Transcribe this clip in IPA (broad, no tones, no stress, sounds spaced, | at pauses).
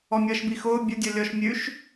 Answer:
ɔ mʲ ʌː ʃ b i x ʊː bʲ ʊ dʲ ɔ lʲ ɔ ʃ mʲ ʉ ʃ